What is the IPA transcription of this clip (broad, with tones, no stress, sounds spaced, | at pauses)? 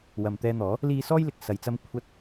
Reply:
w ɐ˨ m t̪ ɛː˧ n̪ ɔː˨˥ | l iː˧ s ɔː˥ j l ɪ˨ k̚ s ɐ˨ j t͡s ɐ˥ m kʷʰ ɐ˧ t̚